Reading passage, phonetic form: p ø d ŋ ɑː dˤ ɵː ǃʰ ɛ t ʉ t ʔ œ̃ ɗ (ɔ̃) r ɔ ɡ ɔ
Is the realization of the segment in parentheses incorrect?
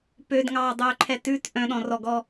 no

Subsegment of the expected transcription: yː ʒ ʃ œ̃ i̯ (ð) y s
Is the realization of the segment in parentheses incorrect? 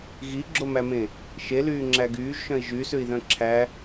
yes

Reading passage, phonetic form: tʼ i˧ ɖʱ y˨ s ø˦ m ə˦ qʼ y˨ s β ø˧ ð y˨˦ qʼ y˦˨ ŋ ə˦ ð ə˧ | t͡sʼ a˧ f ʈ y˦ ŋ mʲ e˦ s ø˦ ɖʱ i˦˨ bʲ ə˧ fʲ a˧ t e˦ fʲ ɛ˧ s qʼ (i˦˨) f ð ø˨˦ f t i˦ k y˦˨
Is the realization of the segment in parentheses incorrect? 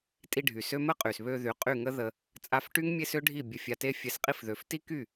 yes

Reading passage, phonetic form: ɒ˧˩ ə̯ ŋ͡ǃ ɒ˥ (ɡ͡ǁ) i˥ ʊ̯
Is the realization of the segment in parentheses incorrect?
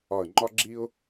no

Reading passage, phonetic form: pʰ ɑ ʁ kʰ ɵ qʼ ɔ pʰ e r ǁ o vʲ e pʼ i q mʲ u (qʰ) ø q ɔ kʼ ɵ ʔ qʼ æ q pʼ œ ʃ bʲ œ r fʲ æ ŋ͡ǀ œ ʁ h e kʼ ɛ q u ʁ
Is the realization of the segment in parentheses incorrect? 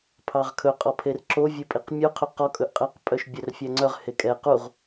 no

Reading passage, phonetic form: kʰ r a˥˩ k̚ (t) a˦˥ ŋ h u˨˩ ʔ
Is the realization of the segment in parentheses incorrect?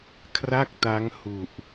no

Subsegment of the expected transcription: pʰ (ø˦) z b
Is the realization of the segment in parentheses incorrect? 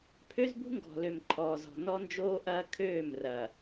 no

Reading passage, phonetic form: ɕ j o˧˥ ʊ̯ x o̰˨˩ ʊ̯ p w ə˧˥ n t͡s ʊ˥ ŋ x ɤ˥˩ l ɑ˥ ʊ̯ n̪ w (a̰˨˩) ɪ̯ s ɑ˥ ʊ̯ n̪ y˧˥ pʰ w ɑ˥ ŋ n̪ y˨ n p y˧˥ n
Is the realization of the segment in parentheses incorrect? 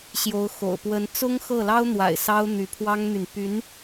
no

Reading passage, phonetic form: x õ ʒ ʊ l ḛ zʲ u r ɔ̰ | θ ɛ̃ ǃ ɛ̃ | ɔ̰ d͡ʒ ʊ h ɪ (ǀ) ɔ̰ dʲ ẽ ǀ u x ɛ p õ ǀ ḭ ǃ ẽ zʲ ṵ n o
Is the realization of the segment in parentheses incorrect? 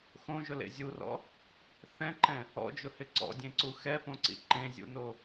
no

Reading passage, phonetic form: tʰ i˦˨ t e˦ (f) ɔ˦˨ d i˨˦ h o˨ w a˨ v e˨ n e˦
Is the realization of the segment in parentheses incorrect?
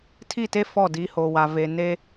no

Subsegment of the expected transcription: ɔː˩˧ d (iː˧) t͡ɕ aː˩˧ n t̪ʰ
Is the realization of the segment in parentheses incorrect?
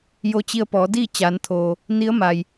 yes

